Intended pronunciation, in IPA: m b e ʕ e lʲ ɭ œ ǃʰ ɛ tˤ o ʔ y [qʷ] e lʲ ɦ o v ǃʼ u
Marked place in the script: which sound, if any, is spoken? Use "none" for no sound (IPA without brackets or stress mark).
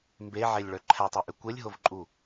kʷ